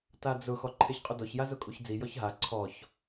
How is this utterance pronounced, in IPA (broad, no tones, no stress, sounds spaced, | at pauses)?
t a d͡z ʊ x ɔ ǃʰ e ç qʼ ʊ d ɔ ç j a z ʊ kʼ u ç d͡z i j ɔ ç ɦ a ǀʰ ɔ ç